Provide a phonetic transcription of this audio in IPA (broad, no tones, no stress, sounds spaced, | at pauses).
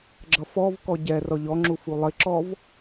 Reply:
ɡ͡ǁ ʌ f ɔ v k ɔ ɟ ɛ r ɔ ʎ ɔ ŋ͡ǁ u f u lˠ ɪ ǁ ɔ v